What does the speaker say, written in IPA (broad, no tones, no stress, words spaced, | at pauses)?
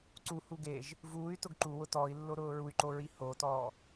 ǀuhu ɡeʒ | vuːy̯ tʊɡǃuwʊ tɔːi̯lːo ɾʊːɹuy̯ǃo ɹihotɔː